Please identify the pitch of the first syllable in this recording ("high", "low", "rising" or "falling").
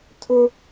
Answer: high